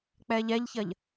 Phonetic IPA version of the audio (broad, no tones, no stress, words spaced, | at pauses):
k͡pɛʎɛʎçɐʎ